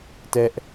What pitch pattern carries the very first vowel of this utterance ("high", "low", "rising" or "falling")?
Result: high